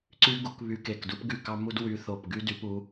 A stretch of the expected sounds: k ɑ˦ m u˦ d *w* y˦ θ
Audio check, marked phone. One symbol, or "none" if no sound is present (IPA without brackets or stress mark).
w